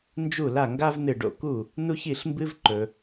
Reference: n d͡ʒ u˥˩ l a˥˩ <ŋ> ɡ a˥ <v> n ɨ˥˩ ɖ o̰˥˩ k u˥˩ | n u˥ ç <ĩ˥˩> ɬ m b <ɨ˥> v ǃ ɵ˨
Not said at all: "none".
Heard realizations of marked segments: ŋ, v, i˥˩, ɨ˥

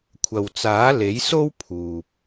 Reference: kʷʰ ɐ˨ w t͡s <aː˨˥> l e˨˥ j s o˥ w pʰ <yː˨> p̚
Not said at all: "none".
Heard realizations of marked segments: aː˨˥, uː˨

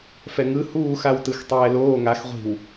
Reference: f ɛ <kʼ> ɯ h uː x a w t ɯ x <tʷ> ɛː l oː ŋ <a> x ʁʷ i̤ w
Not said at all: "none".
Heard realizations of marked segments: ŋ, tˤ, a

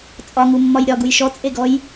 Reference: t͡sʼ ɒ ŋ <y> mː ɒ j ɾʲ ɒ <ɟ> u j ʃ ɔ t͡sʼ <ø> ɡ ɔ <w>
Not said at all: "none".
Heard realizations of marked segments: u, ɡ, e, j

